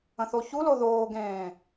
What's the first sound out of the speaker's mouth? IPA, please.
ə̃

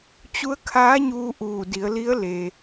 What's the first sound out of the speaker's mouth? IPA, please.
t͡ɕ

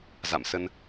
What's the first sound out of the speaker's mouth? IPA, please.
z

